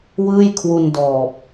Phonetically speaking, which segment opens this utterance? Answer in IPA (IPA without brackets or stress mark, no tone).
w